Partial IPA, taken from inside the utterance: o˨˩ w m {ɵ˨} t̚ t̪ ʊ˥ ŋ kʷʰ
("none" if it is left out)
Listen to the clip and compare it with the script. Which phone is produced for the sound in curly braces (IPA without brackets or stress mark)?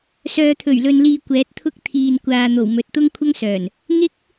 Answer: ɵ˨